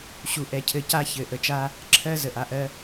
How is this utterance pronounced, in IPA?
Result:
ɕu˨ʔɛ˨cʰɘ˨ ca˦çɘ˨ ʔə˨t͡ʃa˦ | ǁʰɜ˦ zə˨ʔa˨ʔɜ˦

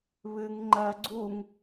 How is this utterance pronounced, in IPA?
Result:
βɨŋ ŋ͡ǃɜ ɡ͡ǀuŋ

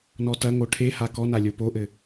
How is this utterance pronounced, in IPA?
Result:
nɔtɐŋo ʈʰeha kɔna lʲopoʔɘ

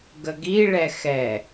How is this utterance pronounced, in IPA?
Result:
ɡəɡi ɭɛxɛ

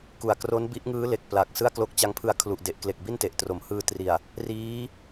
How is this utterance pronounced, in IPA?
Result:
ku˨˩a̯kro˦˥n bi˦˥ʔŋɯː˦˥le˨˩k̚ pla˨˩k̚ sɯ˥˩a̯klo˦˥k̚t͡ɕa˦˥ŋpʰɯ˧a̯ kʰlu˨˩ʔde˨˩ʔkle˨˩k̚bi˥˩n te˨˩ʔtro˩˦m hɯː˧tri˨˩a̯ | riː˦˥

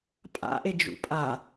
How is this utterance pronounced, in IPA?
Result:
pʼa̰ʔe d͡ʒṵpʼa

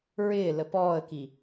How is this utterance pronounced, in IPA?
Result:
ɹɪːlə pɔːə̯ki

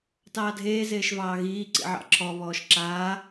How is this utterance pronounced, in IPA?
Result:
tɑːdʱeː zeːʃvɑːɣiː ǀḭʕɑ̰ǁʰɔ βɔːʃǁaː

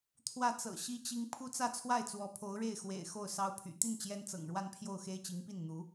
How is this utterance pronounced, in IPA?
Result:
t̪ʰwä˥˩t͡sɤ̰˨˩ ɕi˥t͡ɕi˥ŋ pʰu˥t͡sä˥˧t͡sʰwa˥˩ɪ̯ t͡swɔ˧˥pʰo˧˥ʊ̯ɻe˥˩ɪ̯ xwḛ˨˩ɪ̯ xo˥˩ʊ̯sɑ˥ʊ̯pʰy̰˨˩ t̪i˥˩n t͡ɕjɛ˥n t͡sɤ̰˨˩ŋɻwa˥˧npʰjo˥˩ʊ̯xe˥ɪ̯ t͡ɕi˧˥ŋpi˥˩nn̪u˧˥

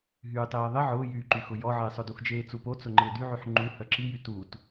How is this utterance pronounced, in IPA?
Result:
ɦyːtˤeːðˤɪ ʕʊːjyːǃyxʊ jɔʕɪːsˤʊ duxd͡ʒeːt͡supo t͡sʊŋ͡ǃɪːdyʕyħ ŋ͡ǃu hœǁijy tut

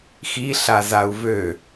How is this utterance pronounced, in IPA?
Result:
xiɬazau̯ vø

